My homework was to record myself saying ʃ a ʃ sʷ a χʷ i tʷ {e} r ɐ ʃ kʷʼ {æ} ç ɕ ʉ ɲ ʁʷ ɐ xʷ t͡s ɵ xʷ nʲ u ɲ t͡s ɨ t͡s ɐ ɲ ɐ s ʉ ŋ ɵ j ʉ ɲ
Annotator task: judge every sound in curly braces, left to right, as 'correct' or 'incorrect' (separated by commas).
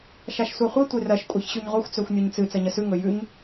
correct, incorrect